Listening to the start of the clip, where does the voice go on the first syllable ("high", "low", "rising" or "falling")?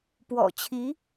low